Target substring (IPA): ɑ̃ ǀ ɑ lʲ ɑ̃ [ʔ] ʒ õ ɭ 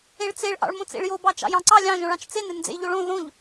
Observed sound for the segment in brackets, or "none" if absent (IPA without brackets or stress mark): none